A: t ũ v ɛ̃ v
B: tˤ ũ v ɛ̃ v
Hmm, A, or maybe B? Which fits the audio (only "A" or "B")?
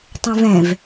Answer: B